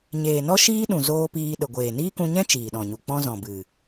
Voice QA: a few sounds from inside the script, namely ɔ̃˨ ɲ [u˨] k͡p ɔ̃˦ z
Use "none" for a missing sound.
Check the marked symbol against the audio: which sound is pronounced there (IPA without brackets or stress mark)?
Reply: u˨